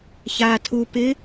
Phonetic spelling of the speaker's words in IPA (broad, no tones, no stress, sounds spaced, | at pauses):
ç aː tʰ u p ɪ